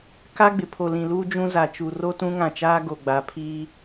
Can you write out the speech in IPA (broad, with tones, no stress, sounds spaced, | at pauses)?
k a˦ ɡ͡b ɪ˨ pʰ o˨ l ĩ˨ l uː˦ d͡ʒ ũ˦ z a˨ t͡ʃ u˨ r o˦ t ũ˦ ŋ ã˨ t͡ʃ aː˦ ɡ o˨ ɡ͡b a˨ pʰ iː˦